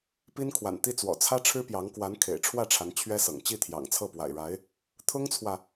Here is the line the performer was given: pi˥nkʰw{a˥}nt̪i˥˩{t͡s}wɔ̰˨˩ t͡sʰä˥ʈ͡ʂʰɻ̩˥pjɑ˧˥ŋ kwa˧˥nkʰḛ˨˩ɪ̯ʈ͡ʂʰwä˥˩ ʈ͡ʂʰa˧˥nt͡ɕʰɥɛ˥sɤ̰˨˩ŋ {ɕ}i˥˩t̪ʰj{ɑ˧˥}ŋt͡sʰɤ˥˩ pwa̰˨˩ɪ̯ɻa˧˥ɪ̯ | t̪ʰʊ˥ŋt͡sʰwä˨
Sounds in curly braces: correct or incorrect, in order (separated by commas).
incorrect, correct, incorrect, incorrect